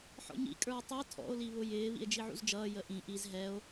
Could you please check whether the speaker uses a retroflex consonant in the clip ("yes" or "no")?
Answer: no